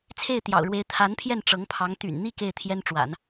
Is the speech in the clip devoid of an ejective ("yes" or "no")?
yes